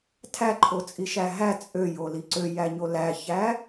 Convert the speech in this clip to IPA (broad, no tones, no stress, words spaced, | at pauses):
tʰæǃʰot͡sʼiʃæ ɦæ t͡sʼøjoli ǀøjæɲo læçæ